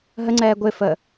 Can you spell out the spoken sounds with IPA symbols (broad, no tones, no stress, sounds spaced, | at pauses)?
ɦ ə ŋ͡ǀ ɛː ɡʷ ɪ f ə